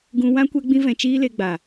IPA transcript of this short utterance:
ɡ ũ˧ w ã˦ kʷ ɛ˧ ɡ͡b ĩ˧ v ɛ̃˨ t͡ʃ iː˧ l e˧ ɡ͡b a˨

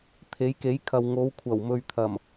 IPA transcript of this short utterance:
t̪ʰ e˨˥ j k e˨˥ j kʰ ɐ˨ w ŋ o˨˧ w kʷʰ ɐ˨˩ w m ɵ˨ ɥ t̪ʰ ɐ˨˩ m

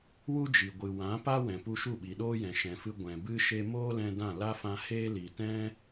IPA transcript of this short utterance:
w u˦ d͡ʒ i˨ ɡʷ ɨ˨ w ã˨˦ p a˦ w ɛ̃˨ p u˧ ʃ u˦˨ ɓ i˨ ɗ oː˦ j ɛ̃˨ ʃ ɛ̃˨ f ɨ˧ ɡʷ ɛ̃˨ b ɨ˦ ʃ e˧ m oː˦ l ɛ̃˧ d ã˦˨ l a˦ f ã˧ h eː˦ l i˨ t ɛ̃˦

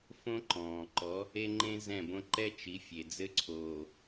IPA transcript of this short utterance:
f õ˦ ǃ ɔ̃ː˨ ǃ ɔ˨˦ | e˦ ŋ͡ǃ ẽ˦ z ɛ̃˦˨ b õ˦ ǃ ɛ˦ t͡ʃ i˨˦ fʲ e˨ d͡z ɘ˦ ǀʰ oː˨

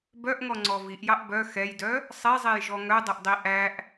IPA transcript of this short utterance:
b œ ʔ ŋ ɔ ŋ͡ǀ ɔ v i ʔ j ɑ ʔ b œ x ɛ j d œ | sˤ e zˤ e j ʒ ɔ ŋ œ dˤ ɵ ʔ dˤ i ʔ æ ʔ

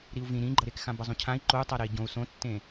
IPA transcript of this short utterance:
ɾ i u̯ v ĩ ɾ ĩ ɡ͡ǃ ʌ ɾ e k x ã b ʌ zˤ ũ cʰ ã i̯ ǃ o u̯ tˤ a ɾ e i̯ ɟ õ u̯ s õ tː ẽ

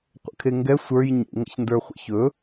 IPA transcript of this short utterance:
qʷ ə̰ kʰ e ŋ ɡ ɛ sʷ ə˞ j ɲ ḛ ŋ ə̰ ç n d ə˞ χʷ ə̰ ç ɵ

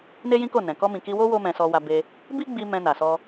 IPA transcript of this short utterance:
n e˦ j ĩ˦ k o˦˨ n ɛ̃˨ k ɔ˧ m ĩ˨ k i˧ w o˦ w o˦ m ɛ̃˧ s ɔ˧ w a˧ b e˧ | b i˦ ɡ͡b i˧ m ɛ̃˧ n a˨ s ɔ˧

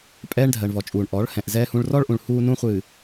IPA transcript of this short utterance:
pʼ ɛː˦ ɳ dʱ ɜ˨ ɳ v ɔ˨ t͡ʃʼ uː˨ ɳ ʔ ɔ˨˦ ɭ h ɛ̃˨ ʔ z ɛː˦ h ũ˦ ɭ r ɔ˦ ɭ ʔ ũ˨ ɭ h uː˦ n ũ˦ χʷ ɨː˨

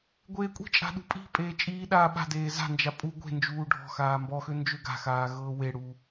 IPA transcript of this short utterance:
ɡʷ eː kʷʼ i̤ t͡ʃʼ a̤ ɗ ṳ pʼ i̤ pʼ eː t͡ʃʼ iː ɗ aː ɓ a̤ d eː z a̤ n d͡ʒ a pʼ u ɡʷ e̤ n d͡ʒ uː ɖʱ ɔ̤ x aː m b ɔ x ø n d͡ʒ ø ɡ a̤ x aː ɣ ɤː w e ɽ u

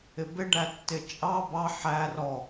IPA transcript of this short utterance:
ɪ b ɪ ɖ æ tː ɪ t͡ʃʼ ɑ b ɑ ħ æ r ɔ

